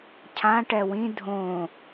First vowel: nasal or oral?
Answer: nasal